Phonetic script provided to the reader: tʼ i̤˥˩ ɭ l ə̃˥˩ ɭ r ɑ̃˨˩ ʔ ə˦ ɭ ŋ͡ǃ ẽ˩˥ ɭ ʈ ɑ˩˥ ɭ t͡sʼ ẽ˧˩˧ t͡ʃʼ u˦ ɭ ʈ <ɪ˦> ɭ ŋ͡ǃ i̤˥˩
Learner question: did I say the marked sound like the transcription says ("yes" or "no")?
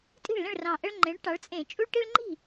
no